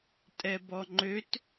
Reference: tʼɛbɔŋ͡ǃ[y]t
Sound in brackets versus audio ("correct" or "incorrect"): incorrect